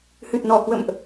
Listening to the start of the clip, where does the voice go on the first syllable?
low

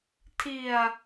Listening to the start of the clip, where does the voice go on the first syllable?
low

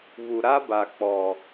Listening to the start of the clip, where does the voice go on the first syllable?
low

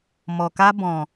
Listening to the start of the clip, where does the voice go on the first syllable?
low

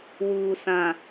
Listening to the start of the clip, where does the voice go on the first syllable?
low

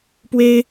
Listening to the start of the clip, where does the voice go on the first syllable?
high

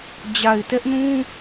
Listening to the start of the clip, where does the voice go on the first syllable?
low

